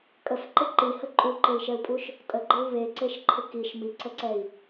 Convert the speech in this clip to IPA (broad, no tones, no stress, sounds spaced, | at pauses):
kʼ ə f ǃ ɪ ǃ i h ə ǃʼ u ǃ e i̯ ʃ ɛ u̯ pʼ u ʃ | tʼ ə ɡ͡ǃ ɪ u̯ β e ǀ e ʃ ǃʰ ɪ k i ʃ m i ǀ ə ǀ ɛ i̯